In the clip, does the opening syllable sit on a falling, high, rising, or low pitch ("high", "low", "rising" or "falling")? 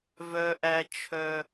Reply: low